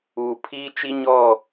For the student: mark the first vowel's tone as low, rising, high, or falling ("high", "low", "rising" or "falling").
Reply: low